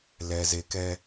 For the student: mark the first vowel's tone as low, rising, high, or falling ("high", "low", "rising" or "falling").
low